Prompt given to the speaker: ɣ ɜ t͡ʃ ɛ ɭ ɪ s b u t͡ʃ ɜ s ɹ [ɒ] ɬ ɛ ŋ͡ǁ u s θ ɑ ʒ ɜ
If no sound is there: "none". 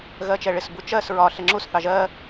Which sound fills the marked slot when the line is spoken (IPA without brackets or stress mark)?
ɒ